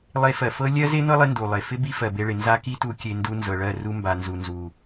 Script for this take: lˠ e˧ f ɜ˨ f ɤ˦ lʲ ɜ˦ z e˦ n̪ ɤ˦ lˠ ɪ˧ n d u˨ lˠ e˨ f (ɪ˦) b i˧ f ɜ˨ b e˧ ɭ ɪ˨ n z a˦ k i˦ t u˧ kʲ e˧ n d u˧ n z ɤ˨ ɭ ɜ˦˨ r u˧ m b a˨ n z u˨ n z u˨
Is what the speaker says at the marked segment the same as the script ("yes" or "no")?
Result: yes